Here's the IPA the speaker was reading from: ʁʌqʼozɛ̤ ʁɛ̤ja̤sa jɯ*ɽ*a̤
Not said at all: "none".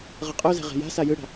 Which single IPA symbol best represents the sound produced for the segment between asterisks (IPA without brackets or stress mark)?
ɽ